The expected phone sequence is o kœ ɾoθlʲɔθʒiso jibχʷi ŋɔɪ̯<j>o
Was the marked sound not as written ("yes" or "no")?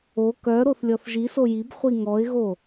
yes